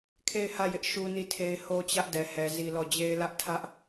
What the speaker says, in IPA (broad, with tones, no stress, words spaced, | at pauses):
kʰe˦˨ɪ̯hä˦˨jɪ˦ʔ ʃu˦ni˦˨tʰe˦ɪ̯ ho˦t͡ɕä˦ʔdɛ˨ hɛ˨ zi˦lɔ˦˨ d͡ʑe˦ɪ̯lä˦ʔ tʰä˦ʔ